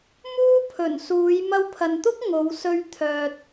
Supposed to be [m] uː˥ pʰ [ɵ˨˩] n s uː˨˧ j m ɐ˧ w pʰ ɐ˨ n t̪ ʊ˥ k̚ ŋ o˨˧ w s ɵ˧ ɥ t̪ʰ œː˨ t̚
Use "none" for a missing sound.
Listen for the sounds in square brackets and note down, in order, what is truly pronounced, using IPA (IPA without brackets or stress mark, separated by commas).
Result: m, ɵ˨˩